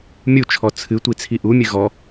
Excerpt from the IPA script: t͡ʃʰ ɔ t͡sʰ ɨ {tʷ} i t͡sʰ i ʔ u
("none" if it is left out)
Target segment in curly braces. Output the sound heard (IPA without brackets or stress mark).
tʷ